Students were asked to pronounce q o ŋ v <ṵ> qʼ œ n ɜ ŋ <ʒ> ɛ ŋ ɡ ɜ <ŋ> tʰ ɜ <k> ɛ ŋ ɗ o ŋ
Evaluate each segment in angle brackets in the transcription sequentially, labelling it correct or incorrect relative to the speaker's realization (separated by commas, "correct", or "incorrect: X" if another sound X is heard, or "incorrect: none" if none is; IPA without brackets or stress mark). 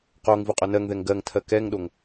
incorrect: u, incorrect: ð, correct, correct